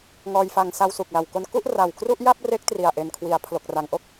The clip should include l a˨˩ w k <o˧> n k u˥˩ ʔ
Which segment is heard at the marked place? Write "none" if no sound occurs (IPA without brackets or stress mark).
o˧